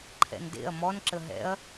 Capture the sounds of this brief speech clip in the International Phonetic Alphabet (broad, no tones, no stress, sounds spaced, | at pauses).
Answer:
ǃʰ ɛ̰ n d ḛ ɐ̯ m ɔ n ǁ ə ɦ ɛ̰ ɐ̯